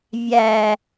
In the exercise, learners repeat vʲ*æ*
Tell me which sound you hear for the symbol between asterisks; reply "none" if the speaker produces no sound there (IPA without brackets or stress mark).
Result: æ